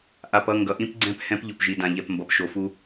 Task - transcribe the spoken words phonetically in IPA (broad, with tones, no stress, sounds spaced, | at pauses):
ʔ a˨ p ʌ˦˨ ŋ ɡ ʌ˨ ʔ ĩ˦ p ɡ͡ǀ ɛ̃˦ p h ɛ̃˦ p ʎ o˨ p ʒ i˨ d ã˨ ʎ ɛ˨ p m b ʌ˨ p ʃ o˨ f u˦